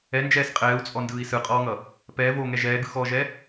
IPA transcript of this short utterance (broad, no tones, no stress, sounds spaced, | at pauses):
ɛ n d͡ʒ ɛː s qʼ ɛː u̯ t͡sʼ ɔ n d ɯː i̯ s ɯ qʼ ɔː ŋ ʌ | p ɛː v oː ŋ ɛ ʒ ɛː ɡ ɯ x ɔː ʒ ɛ